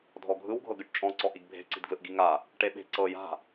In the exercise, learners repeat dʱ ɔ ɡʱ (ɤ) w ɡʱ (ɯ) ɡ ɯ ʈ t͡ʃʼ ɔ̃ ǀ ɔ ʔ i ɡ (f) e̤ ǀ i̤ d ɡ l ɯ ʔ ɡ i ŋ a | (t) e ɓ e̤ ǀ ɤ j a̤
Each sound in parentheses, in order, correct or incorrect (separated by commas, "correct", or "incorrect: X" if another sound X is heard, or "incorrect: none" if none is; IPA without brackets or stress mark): incorrect: ɯ, incorrect: ɤ, incorrect: bʱ, incorrect: ʈ